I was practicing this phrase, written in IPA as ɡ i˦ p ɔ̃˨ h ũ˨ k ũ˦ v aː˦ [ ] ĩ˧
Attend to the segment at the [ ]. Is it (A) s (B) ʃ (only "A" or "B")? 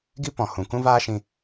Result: B